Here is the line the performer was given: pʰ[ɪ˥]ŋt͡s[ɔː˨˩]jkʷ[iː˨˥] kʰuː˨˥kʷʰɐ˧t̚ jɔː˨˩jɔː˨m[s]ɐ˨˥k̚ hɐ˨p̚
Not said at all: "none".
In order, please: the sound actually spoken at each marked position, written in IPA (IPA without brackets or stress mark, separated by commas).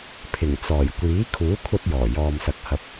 ɪ˨˩, ɔː˨˩, iː˨˥, s